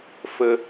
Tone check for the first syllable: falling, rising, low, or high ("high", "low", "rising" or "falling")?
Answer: high